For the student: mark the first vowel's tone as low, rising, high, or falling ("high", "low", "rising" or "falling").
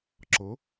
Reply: rising